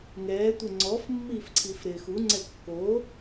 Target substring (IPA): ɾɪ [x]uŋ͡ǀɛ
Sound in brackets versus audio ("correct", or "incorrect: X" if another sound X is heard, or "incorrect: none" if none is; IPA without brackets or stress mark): correct